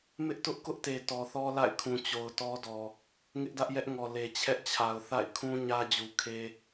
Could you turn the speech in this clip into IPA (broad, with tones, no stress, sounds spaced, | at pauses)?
m ɪ˦ ʔ t ʊ˦ ʔ k ʊ˦ ʔ t e˨ t ɔ˨ θ ɔ˦ l a̰˦˨ ɪ̯ kʰ ũ˨ t͡ɕ o˨ ʊ̯ t ɔ˦ d ɔ˨ | ŋ ɪ˦ ʔ d ä˦ ʔ j ɛ˦ ʔ ŋ ɔ˨ l e˨ t͡ɕʰ ɛ˦ ʔ t͡ɕʰ a˨ ʊ̯ θ a̰˦˨ ɪ̯ kʰ ũ˦ ɲ ä˦ d͡ʑ u˨ kʰ e˦